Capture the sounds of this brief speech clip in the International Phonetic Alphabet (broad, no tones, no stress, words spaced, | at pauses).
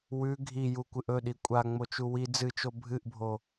wʉ ɡʱiju kʷɨʔɵɗi kʷʼa ŋ͡mot͡ʃuwi d͡zɨt͡ʃo bʱɨʔbʱo